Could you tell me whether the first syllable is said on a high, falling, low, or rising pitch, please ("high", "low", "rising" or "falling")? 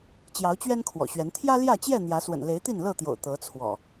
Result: rising